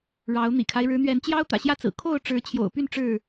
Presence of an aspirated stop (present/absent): present